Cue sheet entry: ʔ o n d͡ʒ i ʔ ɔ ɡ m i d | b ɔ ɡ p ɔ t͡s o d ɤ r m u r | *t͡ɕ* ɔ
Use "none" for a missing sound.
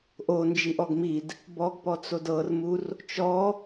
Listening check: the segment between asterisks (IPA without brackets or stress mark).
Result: t͡ʃ